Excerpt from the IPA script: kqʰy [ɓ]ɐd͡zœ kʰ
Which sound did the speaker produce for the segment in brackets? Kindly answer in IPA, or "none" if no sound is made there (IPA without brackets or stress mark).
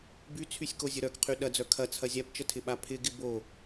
ɗ